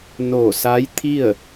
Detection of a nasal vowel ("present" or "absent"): absent